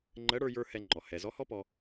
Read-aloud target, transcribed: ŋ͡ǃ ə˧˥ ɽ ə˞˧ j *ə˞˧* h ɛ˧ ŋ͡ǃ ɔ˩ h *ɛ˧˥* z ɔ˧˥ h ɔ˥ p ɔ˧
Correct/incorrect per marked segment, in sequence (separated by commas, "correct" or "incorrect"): correct, incorrect